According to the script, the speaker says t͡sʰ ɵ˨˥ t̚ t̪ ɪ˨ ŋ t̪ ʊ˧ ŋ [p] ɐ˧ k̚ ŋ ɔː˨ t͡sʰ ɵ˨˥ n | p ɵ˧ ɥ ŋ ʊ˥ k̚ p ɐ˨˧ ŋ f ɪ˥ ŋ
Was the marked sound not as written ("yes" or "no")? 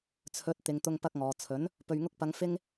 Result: no